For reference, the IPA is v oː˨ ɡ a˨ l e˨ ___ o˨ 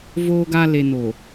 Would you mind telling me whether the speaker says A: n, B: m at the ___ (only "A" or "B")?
A